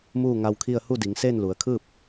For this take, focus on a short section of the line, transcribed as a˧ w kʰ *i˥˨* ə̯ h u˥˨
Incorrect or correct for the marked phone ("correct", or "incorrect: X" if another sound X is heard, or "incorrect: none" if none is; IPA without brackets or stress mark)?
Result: correct